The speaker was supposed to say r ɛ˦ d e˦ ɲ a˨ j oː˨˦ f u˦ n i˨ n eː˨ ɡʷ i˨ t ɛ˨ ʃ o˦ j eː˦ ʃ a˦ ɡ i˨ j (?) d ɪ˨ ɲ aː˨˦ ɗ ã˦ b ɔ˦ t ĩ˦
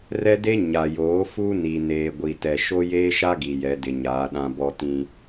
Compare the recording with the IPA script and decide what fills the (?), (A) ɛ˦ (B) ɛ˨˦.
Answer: B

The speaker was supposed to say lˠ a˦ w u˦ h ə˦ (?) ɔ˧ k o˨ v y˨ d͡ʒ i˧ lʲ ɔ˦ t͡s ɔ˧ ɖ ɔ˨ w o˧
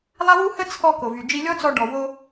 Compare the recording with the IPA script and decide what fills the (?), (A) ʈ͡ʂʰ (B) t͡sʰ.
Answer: B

